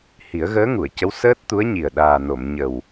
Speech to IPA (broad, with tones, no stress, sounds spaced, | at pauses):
h i˨˩˦ ə̯ ɣ əː˧˥ ŋ u˨˩˨ ə̯ c ə˧˥ w s əː˦˥ t̚ t̪ u˧˥ ə̯ ɲ i˨˩ ə̯ ɗ aː˨˩ n o˨˩˨ m ɲ ə˨˩ w